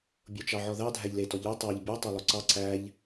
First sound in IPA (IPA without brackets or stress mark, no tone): bʲ